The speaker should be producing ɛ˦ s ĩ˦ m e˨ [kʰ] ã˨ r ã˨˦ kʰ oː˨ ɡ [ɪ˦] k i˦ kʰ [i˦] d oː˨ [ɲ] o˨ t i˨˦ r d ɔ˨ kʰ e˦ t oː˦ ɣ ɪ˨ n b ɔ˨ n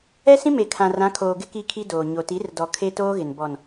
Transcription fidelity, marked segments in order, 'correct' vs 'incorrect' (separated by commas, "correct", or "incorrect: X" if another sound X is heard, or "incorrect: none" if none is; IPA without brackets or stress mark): correct, correct, correct, correct